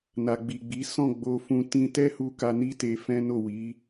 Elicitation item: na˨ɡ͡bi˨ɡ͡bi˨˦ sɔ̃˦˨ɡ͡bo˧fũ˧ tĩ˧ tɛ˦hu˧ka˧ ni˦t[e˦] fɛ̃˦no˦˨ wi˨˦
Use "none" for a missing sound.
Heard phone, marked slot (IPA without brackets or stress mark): e˧